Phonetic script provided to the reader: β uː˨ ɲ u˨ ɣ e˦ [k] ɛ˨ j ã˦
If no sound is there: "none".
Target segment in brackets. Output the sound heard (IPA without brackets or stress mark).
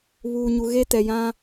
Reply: t